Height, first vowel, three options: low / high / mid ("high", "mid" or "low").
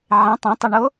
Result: mid